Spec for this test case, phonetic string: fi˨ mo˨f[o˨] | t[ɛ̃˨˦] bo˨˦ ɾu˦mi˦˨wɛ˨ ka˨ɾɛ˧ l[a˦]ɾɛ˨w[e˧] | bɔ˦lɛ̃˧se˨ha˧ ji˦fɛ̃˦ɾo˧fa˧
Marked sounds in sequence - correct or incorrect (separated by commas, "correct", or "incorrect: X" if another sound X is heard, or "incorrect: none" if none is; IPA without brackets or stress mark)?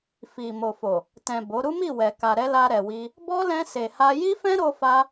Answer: correct, incorrect: ɛ̃˨, incorrect: a˧, incorrect: i˧